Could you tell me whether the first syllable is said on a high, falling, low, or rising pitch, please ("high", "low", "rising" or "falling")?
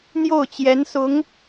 falling